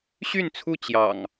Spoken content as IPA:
ɕy˥˨nt͡sʰu˥˨ t͡ɕjɑ̰˨˩ŋ

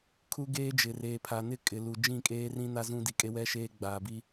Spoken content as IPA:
kʰu˦ɡeː˦ d͡ʒɪ˨reː˨pʰa˨nɪ˦ kʼɪ˨ lu˨ d͡ʒĩ˦˨kʼeː˦rĩ˦ na˦zũ˦ di˨kʼe˦wɛ˦ ʃeː˦ɡ͡baː˨bi˦

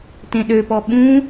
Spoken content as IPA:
tẽɗøpɔ ɓũ

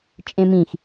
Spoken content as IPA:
t͡ʃʼẽmĩx

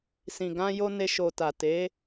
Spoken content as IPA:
sĩ˨ɡã˧jo˧ ne˧ʃo˨ta˨ te˨˦

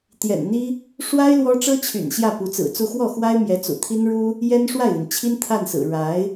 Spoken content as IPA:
t̪jɛ̰˨˩nn̪i˥ | ʂwa˥ɪ̯ lwɔ˥ ʈ͡ʂɤ˥t͡ɕʰy̰˨˩n ɕjä˥˩pu˧˥t͡sɹ̩˨˩t͡su˥˧ xwɔ˥˩xwa˥ɪ̯mjɛ˧˥t͡sṵ˨˩ t̪ʰi˥nɻu˥ | jɛ˥nʂwa˥˩ɪ̯li˩nt͡ɕʰi˥n t̪ʰa˥˩nsɹ̩˨˩ ɻa˧˥ɪ̯

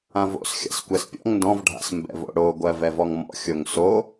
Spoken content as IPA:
ãvo̰sxʲa̰s kʷɛspʲɔ̰ŋ ndɔ̃vɖʱa̰s mbɛ̰vo̰ɽo ɡʷɜvɛvɔŋmɔ̰ xʲoŋso

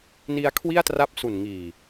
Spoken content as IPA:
ni˦˥a̯kʰwi˥˩a̯tra˦˥p̚su˨˩n ŋiː˨˩

